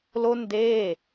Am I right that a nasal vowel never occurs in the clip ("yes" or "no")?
yes